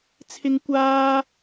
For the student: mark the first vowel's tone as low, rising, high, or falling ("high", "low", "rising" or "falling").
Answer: high